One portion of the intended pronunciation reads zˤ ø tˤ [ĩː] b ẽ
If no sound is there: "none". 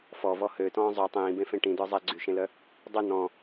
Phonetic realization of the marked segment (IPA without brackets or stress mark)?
ĩː